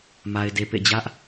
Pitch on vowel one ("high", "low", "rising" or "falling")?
low